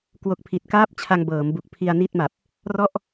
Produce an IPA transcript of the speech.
kwo˦˥k̚ pʰi˨˩t̚kaː˥˩p̚t͡ɕʰa˧ŋ bɤː˩˦m bu˨˩k̚pʰi˧a̯ni˥˩t̚ma˨˩p̚ | rɔ˥˩ʔ

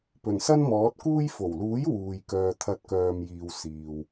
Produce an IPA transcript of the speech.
pɵ˨˩nsɐ˥nmɔː˨˥t̚kuː˥j fo˨˩wluː˨˥j wuː˨j kœː˨t̪ʰɐ˨˥t̚ kœː˨mjiː˨w siː˨w

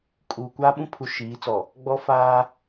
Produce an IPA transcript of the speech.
kʼu˨ kʷaː˦ɓũ˦pʰu˨ ʃiː˨˦t͡sɔ˨ | ɡ͡bɔ˦faː˦

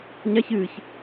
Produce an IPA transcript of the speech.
ɲaç ɨːç

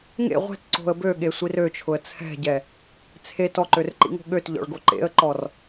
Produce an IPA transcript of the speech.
ŋḛ ʁʷɛ̤tǀo̤ə̯ bøɠesʷir øt͡ʃʰʊə̯ t͡sʰɛ̤ɟɛ | t͡sʰet ɔǃørǃḭŋo̤ ɠøtʎɔ̰ɭɡo ǃḛə̯ǃɔr

